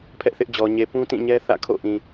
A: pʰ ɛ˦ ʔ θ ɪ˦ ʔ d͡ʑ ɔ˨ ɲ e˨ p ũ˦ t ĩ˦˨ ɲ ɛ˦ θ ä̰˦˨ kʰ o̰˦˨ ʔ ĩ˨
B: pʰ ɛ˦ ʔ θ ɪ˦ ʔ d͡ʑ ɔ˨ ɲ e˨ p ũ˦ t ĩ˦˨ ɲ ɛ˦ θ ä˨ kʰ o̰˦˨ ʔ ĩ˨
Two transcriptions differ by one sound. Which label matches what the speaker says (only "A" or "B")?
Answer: A